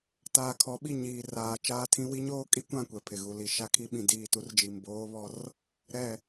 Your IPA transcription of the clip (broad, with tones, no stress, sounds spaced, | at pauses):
t aː˨ kʰ ɔ˨˦ ɓ i˦˨ ɲ iː˨ r aː˨ t͡ʃ aː˦ tʰ ĩ˦ w i˦ ɲ oː˦ kʼ i˦ kʷ ã˦˨ kʷ ɛ˨ pʰ ɪ˨ ɣ u˨ l i˨ ʃ a˦ kʰ i˦ ɓ ĩ˨ d iː˦˨ t u˦ r d͡ʒ i˨ m b oː˦ β ɔ˦ r | ɾ ɛ˦˨